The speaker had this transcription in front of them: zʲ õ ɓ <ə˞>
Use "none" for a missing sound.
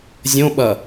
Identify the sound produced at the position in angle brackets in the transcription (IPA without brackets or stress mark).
ɐ